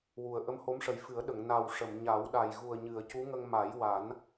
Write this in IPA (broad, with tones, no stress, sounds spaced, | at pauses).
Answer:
w u˨˩ ə̯ ʔ ə˧˥ m h o˧˥ m ʂ ə˨˩ j f ɨ˨˩˦ ə̯ ɗ ə˨˩˨ ŋ n a˨˩ w ʂ ə˨˩˨ m ɲ a˨˩˦ w ɗ a˨˩ j ɣ u˨˩ ə̯ ɲ ɨ˨˩˨ ə̯ c u˧˥ ŋ ə˧ ŋ m a˨˩˦ j w a˨˩˦ n